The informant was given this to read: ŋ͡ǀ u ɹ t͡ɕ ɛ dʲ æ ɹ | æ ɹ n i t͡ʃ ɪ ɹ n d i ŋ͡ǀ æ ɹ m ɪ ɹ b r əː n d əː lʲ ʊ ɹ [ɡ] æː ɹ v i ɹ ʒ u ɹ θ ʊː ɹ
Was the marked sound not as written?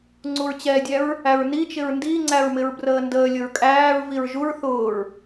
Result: yes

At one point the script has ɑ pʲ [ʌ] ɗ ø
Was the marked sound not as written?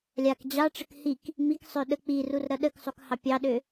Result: yes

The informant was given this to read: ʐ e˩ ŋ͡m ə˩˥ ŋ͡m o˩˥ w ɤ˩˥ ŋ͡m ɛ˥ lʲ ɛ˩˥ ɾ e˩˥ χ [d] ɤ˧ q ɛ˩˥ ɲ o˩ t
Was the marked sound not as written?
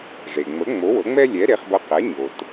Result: yes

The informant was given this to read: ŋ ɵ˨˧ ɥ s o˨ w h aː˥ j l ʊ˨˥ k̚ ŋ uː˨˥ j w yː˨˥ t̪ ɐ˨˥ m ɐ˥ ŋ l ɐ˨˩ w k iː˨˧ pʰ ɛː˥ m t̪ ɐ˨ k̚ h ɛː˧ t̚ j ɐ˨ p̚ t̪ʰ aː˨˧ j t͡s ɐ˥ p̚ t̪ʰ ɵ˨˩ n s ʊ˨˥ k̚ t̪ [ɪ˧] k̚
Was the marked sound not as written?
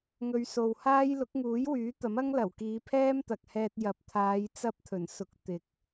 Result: yes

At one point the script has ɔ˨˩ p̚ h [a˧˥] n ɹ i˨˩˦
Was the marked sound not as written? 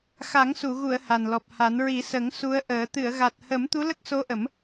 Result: yes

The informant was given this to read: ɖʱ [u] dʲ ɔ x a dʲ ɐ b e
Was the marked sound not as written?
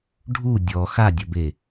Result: no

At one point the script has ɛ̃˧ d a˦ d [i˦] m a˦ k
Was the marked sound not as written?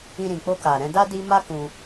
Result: no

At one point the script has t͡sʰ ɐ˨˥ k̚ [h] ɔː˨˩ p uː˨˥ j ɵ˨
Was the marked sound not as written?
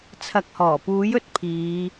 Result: no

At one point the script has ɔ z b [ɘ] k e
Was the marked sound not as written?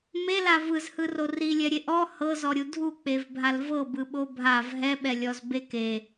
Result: yes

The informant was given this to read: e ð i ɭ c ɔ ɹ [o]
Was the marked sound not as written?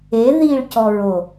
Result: no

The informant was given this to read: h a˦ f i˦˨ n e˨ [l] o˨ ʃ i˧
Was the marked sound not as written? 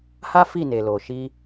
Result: no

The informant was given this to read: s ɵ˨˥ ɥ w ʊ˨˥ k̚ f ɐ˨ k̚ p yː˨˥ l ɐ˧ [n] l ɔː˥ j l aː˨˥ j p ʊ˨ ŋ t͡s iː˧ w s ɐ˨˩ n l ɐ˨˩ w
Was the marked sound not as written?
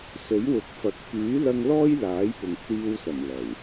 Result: yes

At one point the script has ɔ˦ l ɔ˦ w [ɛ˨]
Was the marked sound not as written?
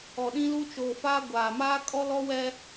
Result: yes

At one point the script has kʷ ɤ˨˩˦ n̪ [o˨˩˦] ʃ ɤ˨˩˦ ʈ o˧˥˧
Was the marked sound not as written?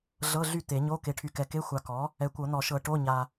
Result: yes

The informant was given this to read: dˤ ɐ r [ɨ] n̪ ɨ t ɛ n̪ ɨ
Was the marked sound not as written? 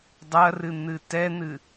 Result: no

